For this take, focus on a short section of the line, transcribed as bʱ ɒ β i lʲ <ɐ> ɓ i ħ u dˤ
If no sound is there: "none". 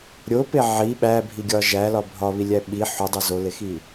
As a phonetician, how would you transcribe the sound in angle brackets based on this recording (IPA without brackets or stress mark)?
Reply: æ